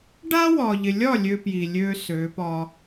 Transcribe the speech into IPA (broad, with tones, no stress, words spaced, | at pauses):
ɖa˦wɒ˨ʎɪ˨lʲɒ˦˨ lʲø˦pji˨ lʲø˦ sø˨˦pɒ˦